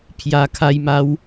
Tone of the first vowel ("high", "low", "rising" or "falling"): low